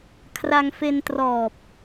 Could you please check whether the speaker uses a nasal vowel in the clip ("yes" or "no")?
no